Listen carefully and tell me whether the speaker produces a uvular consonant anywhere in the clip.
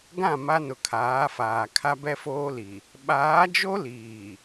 no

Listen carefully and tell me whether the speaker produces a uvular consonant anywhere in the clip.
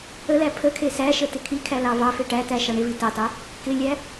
no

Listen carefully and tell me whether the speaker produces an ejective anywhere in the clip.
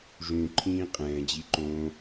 yes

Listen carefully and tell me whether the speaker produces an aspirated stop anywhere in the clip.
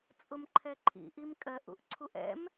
yes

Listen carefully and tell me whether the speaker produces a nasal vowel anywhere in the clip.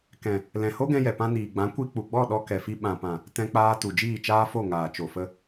yes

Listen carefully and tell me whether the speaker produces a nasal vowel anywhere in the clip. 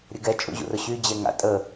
no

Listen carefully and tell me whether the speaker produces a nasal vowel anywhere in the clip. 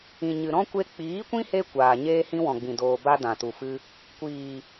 yes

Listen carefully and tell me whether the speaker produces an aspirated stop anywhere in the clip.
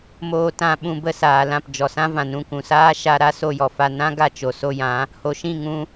no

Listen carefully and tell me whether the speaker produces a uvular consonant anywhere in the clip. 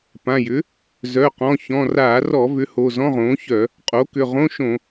yes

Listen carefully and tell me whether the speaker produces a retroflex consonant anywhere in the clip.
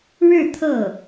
yes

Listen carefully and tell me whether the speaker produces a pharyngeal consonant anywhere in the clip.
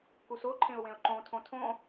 no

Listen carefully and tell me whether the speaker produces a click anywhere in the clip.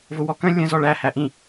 no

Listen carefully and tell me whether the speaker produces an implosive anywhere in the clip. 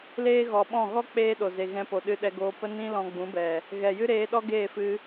yes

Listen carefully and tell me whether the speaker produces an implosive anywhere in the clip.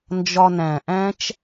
no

